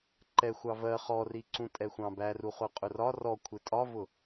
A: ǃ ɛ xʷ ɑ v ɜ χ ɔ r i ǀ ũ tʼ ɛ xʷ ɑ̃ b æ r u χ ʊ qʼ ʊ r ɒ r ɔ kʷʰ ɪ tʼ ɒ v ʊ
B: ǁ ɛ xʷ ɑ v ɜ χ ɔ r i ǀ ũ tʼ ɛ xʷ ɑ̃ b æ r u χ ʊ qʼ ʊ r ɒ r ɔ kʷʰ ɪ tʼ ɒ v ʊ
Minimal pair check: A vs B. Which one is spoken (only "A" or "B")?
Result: A